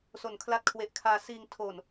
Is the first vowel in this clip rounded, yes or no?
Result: yes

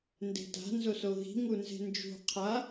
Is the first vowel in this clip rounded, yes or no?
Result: no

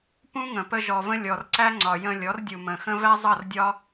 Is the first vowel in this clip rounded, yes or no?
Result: yes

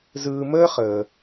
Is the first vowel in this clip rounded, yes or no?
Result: no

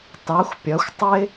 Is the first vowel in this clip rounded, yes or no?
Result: no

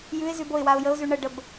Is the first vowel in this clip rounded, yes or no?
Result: yes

